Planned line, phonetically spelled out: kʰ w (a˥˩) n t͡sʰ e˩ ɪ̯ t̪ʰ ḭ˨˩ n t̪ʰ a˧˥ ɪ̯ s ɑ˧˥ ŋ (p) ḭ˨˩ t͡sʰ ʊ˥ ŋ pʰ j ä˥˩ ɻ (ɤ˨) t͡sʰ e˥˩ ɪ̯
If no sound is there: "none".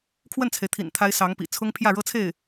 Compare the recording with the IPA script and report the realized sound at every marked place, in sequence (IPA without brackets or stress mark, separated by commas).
ə˥˩, p, ɤ˥